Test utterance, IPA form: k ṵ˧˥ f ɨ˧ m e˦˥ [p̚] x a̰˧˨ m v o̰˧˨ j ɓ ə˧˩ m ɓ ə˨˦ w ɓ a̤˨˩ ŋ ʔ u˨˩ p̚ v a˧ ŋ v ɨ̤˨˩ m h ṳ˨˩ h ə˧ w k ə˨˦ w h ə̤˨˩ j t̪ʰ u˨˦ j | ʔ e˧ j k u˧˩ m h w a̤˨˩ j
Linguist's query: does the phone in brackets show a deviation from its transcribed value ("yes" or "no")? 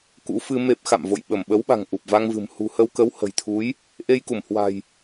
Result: no